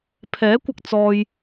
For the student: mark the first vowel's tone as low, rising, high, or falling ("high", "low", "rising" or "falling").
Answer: rising